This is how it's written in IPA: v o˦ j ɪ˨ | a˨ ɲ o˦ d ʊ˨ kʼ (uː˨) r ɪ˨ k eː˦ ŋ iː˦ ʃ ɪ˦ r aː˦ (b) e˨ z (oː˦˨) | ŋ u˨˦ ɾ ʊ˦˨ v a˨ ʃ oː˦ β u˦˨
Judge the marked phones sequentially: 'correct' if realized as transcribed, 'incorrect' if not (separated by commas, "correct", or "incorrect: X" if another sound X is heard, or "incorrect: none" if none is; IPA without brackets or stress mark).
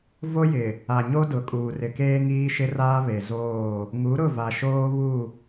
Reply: correct, incorrect: β, correct